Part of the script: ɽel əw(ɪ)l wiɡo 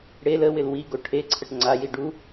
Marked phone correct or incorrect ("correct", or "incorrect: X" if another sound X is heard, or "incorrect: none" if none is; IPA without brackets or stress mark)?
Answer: correct